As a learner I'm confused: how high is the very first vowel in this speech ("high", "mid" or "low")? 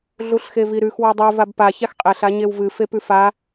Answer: high